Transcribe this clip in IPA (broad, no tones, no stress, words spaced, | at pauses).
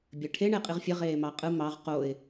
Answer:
bʲɘʈʰe ɳeqʼiʁfʲɘ ʁeːmɑqʼɯ mɑʁ qoɪ̯